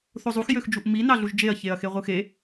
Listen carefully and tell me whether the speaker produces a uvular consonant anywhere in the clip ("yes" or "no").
yes